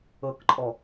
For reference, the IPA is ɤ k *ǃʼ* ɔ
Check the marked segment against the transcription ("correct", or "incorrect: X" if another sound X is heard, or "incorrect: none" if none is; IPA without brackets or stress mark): correct